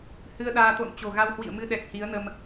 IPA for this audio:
hɨ˧ə̯ɗaː˧ t̪o̰˧˨nt͡ɕo̤˨˩ɣa˧whwḭ˧˨ə̯ mɨ˧ɗɛ˨˩k̚ hi˨˦ə̯ nə˧m

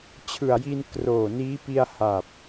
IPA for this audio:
t͡ɕʰɯ˨˩a̯ji˧n kroː˨˩niː˦˥ pi˧a̯ha˨˩p̚

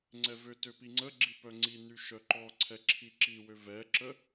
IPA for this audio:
ŋ͡ǀɛvøtø piŋ͡ǀəɡ͡ǁi pœŋ͡ǀiny ʃœǃɔǀʰɛ ǁʰiǁiwø vɛǁə

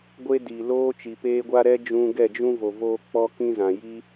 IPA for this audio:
ɡʷe˦diː˨ loː˦t͡ʃi˨peː˦ɡʷa˦ ɾɛ˦d͡ʒũ˧ ɡɛ˦˨d͡ʒũ˦vo˨ voː˦k͡pɔ˦kĩ˦ zã˨ji˦

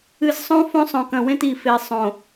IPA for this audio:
ɨ˨zsˤõ˦ fõ˦sˤõ˨kɐ̃˨wẽ˦t i˨fe˨ sˤõ˨

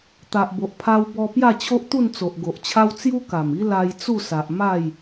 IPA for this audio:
t̪a˨ʔbo˨ʔ pʰa˧wbɔ˧ pja˥˧t͡ɕʰo˦ʔ t̪u˥˧nt͡so˨ʔɡo˨ʔt͡ɕʰa˦w t͡sju˦ka˨˩mi˦ la˧jt͡su˥˧sa˨ʔ ma˥˧j

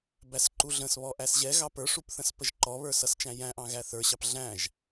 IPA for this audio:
bæsǃuɮə̃sβɔ ʔæsʑɛɣɑ pə˞ʂup θə̃spəʒǃɔβə˞ sʌst͡ʃæ̃jæ̃ʔɑ̃ ɣæθə˞ɕɑp ɮæ̃ʒ

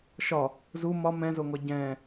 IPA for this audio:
ʃɒ | zu mɒ mɛ̃zoŋɔ ɟɛ̃

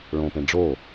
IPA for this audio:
ɭõpẽ ɖ͡ʐo

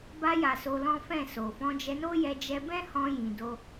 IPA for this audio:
ba˧ja˨ so˧lɔ̃˦fɛ̃˦˨so˨ fɔ̃˧d͡ʒɛ˧no˦jɛ˧ d͡ʒɛ˧bɛ̃˦hɔ̃˧ jĩ˨do˧

